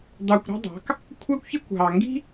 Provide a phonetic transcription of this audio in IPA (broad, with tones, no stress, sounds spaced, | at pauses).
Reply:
d̪ ɑ˧ kʷ ɾ ɑ̤˦ dˤ ɑ̤˨˦ k | kʷʰ æ˦ kʷ ç e˦ kʷ ɦ ɑ˨ ŋ ɡ i̤˦